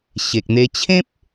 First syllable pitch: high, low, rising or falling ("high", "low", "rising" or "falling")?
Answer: low